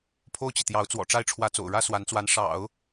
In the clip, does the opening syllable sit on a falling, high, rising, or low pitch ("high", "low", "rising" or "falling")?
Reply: falling